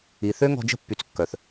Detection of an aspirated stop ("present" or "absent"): absent